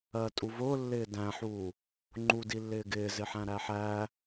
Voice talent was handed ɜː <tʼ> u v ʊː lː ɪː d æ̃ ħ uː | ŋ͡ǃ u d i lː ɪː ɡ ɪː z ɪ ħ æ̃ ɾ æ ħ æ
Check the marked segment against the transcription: correct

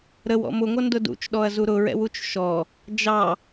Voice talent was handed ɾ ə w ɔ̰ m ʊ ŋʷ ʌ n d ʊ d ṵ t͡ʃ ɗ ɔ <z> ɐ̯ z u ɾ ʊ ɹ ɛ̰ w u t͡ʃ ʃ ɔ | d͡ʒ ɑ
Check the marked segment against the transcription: incorrect: none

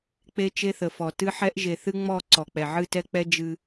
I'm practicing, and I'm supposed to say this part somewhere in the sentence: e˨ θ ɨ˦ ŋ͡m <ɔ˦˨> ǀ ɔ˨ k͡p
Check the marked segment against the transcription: correct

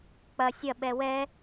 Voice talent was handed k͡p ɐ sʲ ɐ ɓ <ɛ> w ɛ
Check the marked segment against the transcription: correct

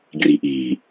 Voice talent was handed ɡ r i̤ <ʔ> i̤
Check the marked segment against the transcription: correct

